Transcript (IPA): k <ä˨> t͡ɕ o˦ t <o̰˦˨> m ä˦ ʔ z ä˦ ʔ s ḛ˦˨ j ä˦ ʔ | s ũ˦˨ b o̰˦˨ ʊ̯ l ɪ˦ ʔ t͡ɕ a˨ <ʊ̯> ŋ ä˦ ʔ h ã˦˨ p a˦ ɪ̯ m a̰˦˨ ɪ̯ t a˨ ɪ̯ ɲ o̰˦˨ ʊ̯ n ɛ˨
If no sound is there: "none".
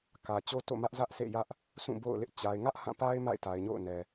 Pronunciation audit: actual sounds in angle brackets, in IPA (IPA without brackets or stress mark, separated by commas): ä˨, o̰˦˨, ɪ̯